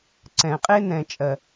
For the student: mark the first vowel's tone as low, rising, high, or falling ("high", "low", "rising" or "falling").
low